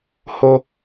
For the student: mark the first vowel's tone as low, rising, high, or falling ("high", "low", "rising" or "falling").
high